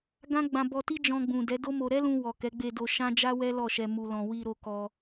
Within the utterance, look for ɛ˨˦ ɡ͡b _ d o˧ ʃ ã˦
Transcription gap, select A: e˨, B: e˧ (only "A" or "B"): B